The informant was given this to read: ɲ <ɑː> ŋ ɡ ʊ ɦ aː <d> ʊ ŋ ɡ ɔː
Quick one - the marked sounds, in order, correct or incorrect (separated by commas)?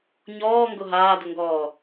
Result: incorrect, correct